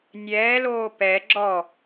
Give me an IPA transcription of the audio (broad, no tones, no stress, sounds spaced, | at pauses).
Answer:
nʲ ɛː l oː p ɛ ɡ͡ǁ ɔ